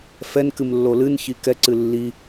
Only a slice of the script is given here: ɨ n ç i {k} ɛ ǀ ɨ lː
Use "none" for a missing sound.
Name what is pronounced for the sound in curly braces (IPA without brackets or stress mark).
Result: k